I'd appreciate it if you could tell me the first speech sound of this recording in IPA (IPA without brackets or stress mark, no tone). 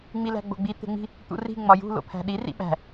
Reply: ŋ͡m